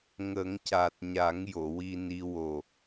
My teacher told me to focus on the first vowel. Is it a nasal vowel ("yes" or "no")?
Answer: no